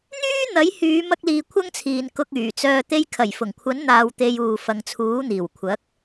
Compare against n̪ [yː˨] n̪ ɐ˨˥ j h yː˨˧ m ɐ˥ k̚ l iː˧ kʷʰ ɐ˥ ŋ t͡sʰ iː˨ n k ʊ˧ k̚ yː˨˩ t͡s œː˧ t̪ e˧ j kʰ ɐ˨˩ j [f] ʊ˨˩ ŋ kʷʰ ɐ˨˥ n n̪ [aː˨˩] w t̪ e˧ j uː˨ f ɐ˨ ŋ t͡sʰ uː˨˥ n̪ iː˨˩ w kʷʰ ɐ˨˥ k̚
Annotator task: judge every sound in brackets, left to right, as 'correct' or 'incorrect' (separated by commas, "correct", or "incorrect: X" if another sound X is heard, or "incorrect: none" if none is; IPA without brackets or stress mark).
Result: incorrect: yː˥, correct, incorrect: aː˧